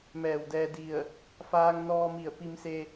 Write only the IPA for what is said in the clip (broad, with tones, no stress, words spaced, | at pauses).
mɛː˧˩wdɛː˧ di˧˩ə̯ | faː˧ŋnɔː˧mi˧˩ə̯ pi˧mse˧